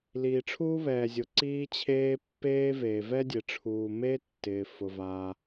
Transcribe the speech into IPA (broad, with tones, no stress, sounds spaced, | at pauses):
l iː˩ ʈ͡ʂʰ uː˥ β ɛː˩ zʲ ʊ˩ ǀ iː˥ t͡ɕʰ eː˥ pː eː˥ v eː˩ v ɛ˥ dʲ e˩ ʈ͡ʂʰ uː˩ m e˥ tː ɪː˩ f ʊ˩ v aː˩